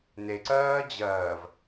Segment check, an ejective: absent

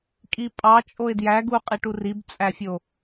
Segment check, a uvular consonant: present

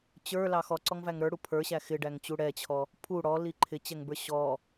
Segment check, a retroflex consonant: present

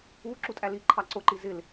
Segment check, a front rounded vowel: absent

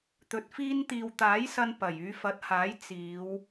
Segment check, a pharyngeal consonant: absent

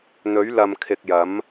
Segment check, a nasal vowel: absent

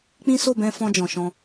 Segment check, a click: absent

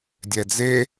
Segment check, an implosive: absent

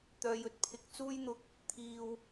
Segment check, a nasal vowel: absent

